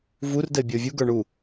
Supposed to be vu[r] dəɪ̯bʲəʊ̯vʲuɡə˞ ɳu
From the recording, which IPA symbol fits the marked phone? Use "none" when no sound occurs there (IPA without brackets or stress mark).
r